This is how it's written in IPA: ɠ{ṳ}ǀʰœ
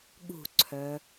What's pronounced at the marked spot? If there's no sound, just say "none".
ṳ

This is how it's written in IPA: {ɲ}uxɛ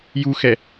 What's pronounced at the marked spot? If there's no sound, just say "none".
j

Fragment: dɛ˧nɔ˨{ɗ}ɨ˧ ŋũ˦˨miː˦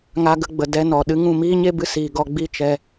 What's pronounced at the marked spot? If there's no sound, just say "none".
ɗ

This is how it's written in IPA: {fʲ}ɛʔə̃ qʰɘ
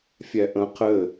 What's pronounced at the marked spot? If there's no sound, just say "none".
fʲ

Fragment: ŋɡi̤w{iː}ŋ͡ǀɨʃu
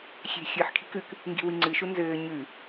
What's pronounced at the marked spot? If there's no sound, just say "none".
i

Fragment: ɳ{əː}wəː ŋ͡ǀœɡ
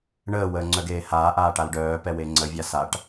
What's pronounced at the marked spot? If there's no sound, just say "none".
əː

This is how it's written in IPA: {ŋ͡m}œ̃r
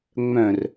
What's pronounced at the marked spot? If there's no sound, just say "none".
ŋ͡m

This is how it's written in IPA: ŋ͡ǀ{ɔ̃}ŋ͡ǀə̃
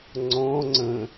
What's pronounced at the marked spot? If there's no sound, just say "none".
ɔ̃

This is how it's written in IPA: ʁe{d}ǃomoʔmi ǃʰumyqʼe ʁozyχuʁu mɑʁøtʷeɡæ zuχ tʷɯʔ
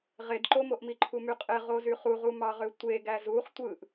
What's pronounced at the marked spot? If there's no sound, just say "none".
d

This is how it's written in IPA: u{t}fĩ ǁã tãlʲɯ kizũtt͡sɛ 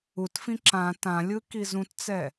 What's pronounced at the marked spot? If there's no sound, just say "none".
t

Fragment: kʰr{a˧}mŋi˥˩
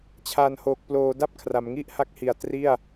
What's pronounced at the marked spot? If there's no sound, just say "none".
a˩˦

